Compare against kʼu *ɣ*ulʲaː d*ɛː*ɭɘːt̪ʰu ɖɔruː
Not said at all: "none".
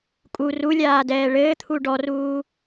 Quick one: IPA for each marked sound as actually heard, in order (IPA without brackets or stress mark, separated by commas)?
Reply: r, ɛː